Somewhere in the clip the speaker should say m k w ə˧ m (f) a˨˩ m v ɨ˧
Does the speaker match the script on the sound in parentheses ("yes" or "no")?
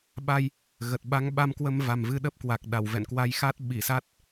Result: no